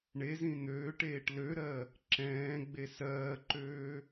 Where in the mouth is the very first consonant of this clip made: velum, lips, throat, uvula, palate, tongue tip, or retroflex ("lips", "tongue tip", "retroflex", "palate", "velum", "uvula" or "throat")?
retroflex